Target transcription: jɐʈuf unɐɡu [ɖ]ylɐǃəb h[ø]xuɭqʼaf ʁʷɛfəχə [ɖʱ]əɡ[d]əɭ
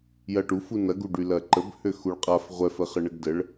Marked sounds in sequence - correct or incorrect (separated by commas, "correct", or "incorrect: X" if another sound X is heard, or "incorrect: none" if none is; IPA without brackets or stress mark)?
correct, correct, incorrect: ɳ, correct